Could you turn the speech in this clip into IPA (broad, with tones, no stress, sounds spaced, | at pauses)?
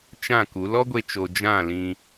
t͡ʃ ã˦˨ k u˨˦ l ɔ˦ ɡʷ e˧ t͡ʃ o˨ d͡ʒ ã˦˨ l ĩ˧